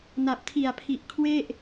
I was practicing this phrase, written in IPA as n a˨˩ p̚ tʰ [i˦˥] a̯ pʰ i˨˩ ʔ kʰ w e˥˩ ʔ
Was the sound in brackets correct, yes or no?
no